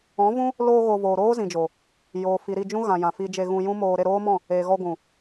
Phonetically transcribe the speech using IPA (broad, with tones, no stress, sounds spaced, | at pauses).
ɔ̃˨˦ v ũ˦ | l oː˧ ɣ o˨ v oː˨ ɾ oː˦ z ĩ˨ d͡ʒ o˨ | j oː˨ f i˨ ɾ i˦˨ d͡ʒ ũ˦ ɣ ã˨ j ã˨ f i˧ d͡ʒ e˧ ɣ ũ˧ j ũ˦ m oː˧ ɾ e˦˨ ɾ oː˦ m ɔ̃˦˨ | eː˨ ɣ ɔ˧ ɡʷ ũ˨